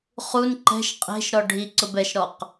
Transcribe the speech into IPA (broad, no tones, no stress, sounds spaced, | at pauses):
χ u n ǃ ɛ̤ ʃ qʼ e̤ ʃ ɾ ɔ ɖʱ i ǀ ʊ b ɛ ʃ ɾ ɔ q